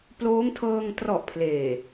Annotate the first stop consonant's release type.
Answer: plain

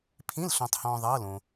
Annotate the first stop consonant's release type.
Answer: aspirated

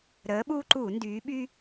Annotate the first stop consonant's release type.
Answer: implosive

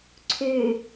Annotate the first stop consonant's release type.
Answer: click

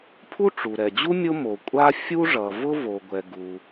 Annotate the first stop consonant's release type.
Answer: aspirated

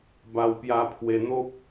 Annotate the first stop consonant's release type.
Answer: plain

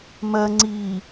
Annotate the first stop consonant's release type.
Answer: click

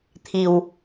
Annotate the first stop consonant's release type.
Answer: aspirated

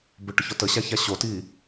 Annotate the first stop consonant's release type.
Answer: plain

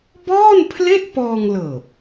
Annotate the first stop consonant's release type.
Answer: plain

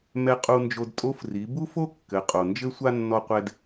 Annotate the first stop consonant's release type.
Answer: ejective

